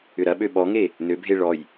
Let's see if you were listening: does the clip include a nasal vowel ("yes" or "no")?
no